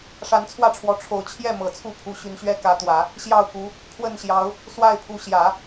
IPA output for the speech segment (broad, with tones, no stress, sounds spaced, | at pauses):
ʂ a˧˥ n t͡sʰ w ä˥˩ ʈ͡ʂʰ w ɔ˧˥ ʈ͡ʂʰ o˨˩ ʊ̯ t͡ɕʰ j ɛ˥˩ m ɤ˨˩ t͡sʰ u˥˩ pʰ u˧˥ ɕ y˧˥ n ɕ ɥ ɛ˥ k ä˧˥ t̪ w ä˨˩˦ | ɕ j ɑ˥˩ ʊ̯ k u˧˥ | pʰ w ə˥˩ n ɕ j ɑ˧˥ ʊ̯ | s w a˥˩ ɪ̯ pʰ u˧˥ ɕ j ä˨˩˦